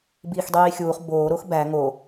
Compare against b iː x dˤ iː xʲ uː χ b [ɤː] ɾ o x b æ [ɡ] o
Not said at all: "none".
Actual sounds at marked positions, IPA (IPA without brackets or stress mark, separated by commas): oː, ŋ